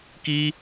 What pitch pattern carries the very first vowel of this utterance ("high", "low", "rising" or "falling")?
high